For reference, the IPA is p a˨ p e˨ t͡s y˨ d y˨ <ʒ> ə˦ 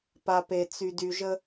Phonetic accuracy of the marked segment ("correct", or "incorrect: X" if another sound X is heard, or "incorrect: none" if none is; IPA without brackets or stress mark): correct